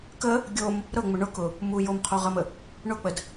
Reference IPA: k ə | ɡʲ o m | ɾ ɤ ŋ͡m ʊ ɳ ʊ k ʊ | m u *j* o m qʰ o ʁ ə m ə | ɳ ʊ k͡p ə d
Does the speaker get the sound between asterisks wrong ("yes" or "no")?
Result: no